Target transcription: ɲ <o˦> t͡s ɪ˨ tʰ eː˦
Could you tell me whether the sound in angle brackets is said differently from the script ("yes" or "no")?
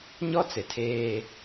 yes